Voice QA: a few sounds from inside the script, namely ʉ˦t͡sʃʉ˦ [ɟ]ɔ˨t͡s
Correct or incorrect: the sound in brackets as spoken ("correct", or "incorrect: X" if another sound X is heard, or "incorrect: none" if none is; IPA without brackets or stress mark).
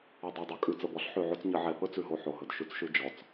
incorrect: d͡ʒ